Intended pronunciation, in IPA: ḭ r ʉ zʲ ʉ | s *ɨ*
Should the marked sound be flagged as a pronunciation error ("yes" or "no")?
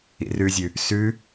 yes